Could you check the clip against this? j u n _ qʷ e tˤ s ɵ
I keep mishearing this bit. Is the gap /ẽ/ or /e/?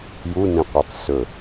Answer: ẽ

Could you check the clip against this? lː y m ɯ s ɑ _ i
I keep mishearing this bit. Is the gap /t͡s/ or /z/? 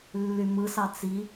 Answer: t͡s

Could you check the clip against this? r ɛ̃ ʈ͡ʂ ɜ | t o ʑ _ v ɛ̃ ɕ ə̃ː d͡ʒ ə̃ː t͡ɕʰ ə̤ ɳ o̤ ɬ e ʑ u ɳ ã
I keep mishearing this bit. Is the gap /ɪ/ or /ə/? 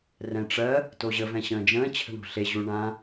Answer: ə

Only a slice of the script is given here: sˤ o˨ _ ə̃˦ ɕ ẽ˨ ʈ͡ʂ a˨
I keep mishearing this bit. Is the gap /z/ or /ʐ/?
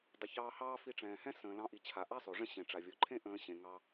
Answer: ʐ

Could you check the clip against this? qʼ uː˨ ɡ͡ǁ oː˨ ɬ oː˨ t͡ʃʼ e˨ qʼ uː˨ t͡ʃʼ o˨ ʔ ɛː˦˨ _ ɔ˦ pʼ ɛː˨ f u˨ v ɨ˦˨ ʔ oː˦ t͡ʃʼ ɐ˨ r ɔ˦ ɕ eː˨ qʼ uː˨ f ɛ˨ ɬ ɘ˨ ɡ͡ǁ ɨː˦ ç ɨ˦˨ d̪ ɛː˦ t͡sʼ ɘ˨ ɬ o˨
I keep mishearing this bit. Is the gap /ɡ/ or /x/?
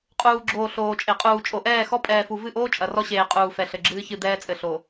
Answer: x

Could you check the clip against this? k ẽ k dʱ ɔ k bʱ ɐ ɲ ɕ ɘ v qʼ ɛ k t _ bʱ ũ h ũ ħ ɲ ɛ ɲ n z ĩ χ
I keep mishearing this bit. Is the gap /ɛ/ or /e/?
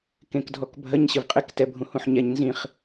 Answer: ɛ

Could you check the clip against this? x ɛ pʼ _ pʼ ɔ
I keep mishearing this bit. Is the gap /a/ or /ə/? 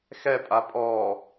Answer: a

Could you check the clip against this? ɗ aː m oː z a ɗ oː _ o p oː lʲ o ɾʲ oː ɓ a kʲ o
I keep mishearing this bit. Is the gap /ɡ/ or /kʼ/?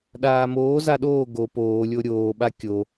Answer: ɡ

